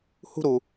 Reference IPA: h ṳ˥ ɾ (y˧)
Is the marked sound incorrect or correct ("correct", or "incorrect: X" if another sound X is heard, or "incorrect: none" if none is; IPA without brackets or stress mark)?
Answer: incorrect: u˧